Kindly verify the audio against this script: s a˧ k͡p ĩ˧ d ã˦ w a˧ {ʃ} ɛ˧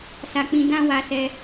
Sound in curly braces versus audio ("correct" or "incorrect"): incorrect